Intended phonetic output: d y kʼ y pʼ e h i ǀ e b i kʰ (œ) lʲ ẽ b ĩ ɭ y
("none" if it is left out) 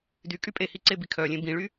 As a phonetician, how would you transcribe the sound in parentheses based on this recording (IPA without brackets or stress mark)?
œ